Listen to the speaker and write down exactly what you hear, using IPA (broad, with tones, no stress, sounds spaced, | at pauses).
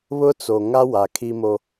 β ʊ˦ t͡s o˨ ŋ a˦ w a˨ kʰ i˦ m o˦